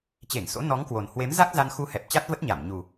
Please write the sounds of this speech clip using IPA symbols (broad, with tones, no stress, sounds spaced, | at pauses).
t͡ɕ e˧˩ ŋ s o̰˧˥ n ɔ˨˦ ŋ k w o˨˩ n h w e˨˦ m z a˦˥ k̚ z a˧ n x u˧ h ɛ˨˩ p̚ t͡ɕ a˦˥ t̚ v ə˦˥ t̚ ɲ a˧˩ m ɲ u˨˩